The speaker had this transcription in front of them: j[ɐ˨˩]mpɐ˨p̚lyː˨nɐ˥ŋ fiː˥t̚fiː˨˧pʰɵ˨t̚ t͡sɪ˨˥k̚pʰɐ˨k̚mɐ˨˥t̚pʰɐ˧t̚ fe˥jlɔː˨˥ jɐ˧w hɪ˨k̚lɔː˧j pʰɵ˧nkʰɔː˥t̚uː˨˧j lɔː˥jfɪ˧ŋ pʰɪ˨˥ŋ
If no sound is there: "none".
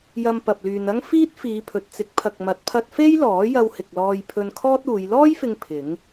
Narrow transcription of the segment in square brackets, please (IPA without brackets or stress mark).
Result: ɐ˧